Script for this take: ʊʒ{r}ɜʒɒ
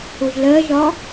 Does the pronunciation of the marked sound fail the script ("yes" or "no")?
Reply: yes